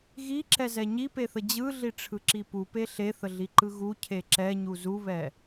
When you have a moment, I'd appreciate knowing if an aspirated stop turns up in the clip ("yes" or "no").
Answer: yes